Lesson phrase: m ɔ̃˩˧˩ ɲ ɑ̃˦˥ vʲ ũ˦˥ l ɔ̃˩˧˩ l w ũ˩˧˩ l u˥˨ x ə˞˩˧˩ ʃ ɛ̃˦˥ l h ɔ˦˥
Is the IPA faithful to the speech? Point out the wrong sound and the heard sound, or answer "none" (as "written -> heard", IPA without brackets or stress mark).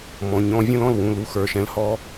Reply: ɑ̃˦˥ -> ɔ̃˦˥